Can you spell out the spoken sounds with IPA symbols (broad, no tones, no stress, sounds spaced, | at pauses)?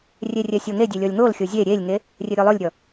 rʲ e rʲ ɛ sʲ o ŋ e dʲ e lʲ ɔ lʲ ŋ o l xʲ o zʲ e ɾʲ e lʲ ŋ e | rʲ e ɾʲ o lˠ o lʲ ɾʲ ɔ